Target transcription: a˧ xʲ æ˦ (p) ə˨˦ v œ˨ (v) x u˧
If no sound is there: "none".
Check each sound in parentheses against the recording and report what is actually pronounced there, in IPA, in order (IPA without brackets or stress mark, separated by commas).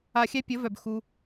pʲ, b